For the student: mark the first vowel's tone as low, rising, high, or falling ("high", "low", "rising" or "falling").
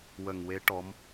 low